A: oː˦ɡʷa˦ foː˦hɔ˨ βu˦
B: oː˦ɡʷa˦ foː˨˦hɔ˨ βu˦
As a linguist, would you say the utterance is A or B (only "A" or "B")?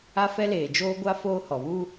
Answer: A